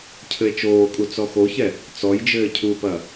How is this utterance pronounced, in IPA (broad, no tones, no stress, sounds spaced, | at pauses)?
cʰ ɘ e̯ t͡ʃ oː kʼ u t͡s ɔ x o ç ɛ | t͡s ɔ j d͡ʒ ɘː cʰ u p ɐ